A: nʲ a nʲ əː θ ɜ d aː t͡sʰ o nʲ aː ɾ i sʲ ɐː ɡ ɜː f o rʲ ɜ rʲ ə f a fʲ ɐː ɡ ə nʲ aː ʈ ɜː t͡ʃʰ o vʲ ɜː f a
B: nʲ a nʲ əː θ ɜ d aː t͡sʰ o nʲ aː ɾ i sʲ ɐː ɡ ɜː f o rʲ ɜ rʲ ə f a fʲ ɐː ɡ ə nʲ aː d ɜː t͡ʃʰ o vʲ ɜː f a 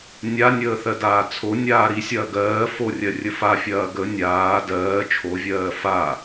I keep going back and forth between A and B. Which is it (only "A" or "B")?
B